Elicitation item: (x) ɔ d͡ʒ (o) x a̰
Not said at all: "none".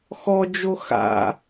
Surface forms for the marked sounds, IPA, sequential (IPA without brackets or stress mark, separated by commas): x, o